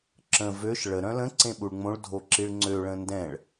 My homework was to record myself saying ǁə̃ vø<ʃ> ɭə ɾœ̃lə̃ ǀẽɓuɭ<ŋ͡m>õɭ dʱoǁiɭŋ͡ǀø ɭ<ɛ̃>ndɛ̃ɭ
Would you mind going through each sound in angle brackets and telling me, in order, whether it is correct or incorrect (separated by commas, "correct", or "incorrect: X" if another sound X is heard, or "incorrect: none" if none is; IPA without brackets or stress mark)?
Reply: correct, correct, incorrect: ə̃